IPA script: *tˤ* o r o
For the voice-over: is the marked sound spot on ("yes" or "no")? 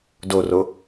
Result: no